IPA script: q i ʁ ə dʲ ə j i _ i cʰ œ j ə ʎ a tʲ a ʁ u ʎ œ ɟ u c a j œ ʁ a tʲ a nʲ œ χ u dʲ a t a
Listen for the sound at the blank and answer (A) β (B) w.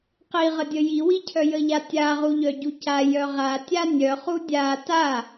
B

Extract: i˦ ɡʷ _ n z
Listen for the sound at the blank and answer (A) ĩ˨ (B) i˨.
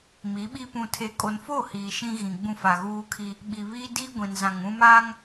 A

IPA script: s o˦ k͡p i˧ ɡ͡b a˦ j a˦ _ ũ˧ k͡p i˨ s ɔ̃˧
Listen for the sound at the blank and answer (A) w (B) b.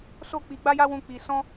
A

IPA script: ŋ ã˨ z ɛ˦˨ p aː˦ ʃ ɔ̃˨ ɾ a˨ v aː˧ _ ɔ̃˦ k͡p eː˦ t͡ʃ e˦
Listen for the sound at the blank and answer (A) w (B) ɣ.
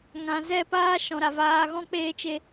B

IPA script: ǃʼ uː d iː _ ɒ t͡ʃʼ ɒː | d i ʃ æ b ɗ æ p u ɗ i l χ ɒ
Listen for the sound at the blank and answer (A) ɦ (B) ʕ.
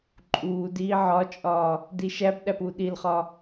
B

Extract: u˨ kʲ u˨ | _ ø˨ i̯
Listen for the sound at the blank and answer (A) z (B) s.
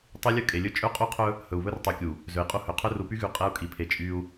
A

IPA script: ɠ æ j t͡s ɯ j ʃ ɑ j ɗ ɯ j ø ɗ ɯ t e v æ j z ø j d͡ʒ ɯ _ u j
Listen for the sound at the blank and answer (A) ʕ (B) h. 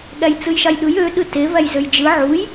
A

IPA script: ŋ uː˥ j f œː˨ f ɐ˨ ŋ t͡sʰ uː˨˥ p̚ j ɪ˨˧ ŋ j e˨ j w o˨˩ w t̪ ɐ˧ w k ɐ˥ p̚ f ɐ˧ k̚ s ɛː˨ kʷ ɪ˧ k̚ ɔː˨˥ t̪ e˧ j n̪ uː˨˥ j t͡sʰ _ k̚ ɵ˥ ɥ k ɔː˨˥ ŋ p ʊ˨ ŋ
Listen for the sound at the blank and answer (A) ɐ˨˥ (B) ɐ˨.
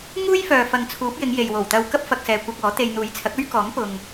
A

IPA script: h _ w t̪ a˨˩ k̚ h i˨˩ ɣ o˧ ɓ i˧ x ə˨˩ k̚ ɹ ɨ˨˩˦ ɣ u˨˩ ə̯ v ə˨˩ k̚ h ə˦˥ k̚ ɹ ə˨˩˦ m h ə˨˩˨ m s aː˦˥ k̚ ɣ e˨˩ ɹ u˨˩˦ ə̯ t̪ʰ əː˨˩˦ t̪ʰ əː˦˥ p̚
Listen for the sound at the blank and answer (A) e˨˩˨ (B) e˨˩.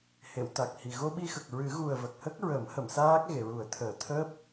A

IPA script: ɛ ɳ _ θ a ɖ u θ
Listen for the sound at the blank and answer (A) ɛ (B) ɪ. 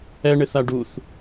B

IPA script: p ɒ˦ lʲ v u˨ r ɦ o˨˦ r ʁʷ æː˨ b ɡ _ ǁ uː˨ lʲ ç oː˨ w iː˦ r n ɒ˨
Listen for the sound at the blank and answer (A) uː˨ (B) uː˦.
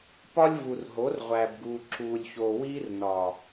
A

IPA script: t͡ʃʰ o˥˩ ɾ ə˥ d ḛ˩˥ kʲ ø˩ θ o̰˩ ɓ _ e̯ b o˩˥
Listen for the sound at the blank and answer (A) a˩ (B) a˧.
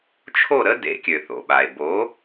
A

